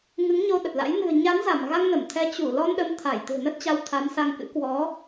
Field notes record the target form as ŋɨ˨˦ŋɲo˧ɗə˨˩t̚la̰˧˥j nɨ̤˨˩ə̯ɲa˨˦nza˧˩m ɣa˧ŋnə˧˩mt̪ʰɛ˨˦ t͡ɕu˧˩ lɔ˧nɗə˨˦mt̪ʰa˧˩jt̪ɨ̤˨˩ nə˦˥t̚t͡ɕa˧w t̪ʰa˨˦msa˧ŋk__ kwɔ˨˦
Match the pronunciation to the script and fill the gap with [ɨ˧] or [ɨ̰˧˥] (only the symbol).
ɨ̰˧˥